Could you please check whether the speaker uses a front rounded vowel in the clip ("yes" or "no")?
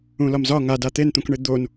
no